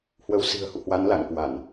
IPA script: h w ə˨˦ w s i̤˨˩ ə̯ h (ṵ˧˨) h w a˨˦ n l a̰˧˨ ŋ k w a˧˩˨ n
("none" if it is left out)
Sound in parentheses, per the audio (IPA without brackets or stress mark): ṵ˧˨